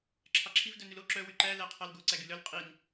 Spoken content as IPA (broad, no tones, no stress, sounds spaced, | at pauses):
ǁʰ ɑ ǁʰ i v d œ n ʉ l o ǁ œ w y ǃ æ l æ qʰ ɑ l ɡ o ǀ æ ɡ y l œ l qʼ i n